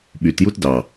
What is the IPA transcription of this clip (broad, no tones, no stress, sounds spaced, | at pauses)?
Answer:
ɓ y t j u t d ɑ